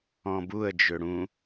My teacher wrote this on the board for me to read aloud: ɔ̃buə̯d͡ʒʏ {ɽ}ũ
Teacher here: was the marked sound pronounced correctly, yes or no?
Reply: yes